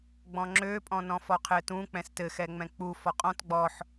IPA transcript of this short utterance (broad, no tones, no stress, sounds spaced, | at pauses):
ɡ͡b ɔ̃ ŋ͡ǁ ø pʼ ɔ̃ n ɔ̃ f ɔ qʰ ɘ t ũ k͡p ɛ̃ s t ɘ x ɛ ŋ͡m ɛ̃ k͡p u f ɔ qʼ ɔ̃ t ɡ͡b ɔ ħ